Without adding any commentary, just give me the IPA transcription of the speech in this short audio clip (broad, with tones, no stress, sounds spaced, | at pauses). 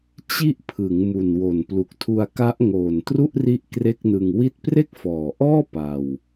t͡ɕ i˦˥ ʔ pʰ ɯ˩˦ ŋ m u˨˩ n w o˨˩ n p l u˨˩ k̚ tʰ u˧ a̯ k a˦˥ ʔ ŋ oː˨˩ n t r u˥˩ ʔ r i˦˥ ʔ k r e˥˩ k̚ n ɯ˧ ŋ w i˦˥ t̚ p r e˥˩ k̚ f ɔː˨˩ ʔ ɔː˥˩ p a˧ w